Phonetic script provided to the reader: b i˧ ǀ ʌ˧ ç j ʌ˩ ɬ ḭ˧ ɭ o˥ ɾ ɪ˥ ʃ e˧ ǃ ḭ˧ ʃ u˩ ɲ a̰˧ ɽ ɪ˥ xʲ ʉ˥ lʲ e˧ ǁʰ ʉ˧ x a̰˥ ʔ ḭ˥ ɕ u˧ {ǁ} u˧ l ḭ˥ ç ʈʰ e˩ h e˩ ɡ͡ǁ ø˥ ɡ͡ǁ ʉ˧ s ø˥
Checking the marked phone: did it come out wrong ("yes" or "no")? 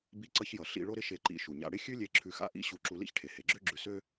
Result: no